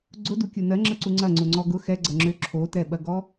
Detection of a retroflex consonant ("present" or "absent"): absent